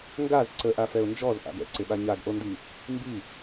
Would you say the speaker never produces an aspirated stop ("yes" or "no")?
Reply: yes